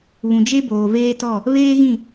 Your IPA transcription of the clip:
β ũ˨ d͡ʒ e˦ b oː˨ v eː˦ t ɔ˦˨ | β eː˦ ɣ ĩ˦˨

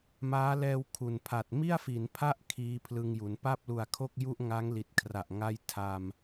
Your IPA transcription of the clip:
m aː˦˥ l ɛː˧ w kʰ u˨˩ n pʰ a˨˩ t̚ m i˥˩ a̯ f i˩˦ n pʰ a˥˩ ʔ kʰ iː˦˥ pʰ l ɯ˧ ŋ j u˩˦ n p a˥˩ p̚ l u˨˩ a̯ kʰ o˥˩ k̚ j u˥˩ ʔ ŋ a˦˥ ŋ l i˨˩ t̚ kʰ r a˨˩ ʔ ŋ a˥˩ j tʰ a˧ m

